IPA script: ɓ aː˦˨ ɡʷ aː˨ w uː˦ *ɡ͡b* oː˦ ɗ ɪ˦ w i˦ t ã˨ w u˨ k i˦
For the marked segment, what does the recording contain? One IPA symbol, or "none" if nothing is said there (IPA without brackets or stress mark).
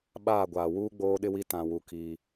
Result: ɡ͡b